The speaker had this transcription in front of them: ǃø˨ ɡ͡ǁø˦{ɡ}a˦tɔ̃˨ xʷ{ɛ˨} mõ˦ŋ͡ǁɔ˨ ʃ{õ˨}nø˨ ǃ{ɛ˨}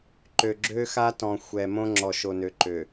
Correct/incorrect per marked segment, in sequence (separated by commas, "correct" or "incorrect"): incorrect, correct, incorrect, incorrect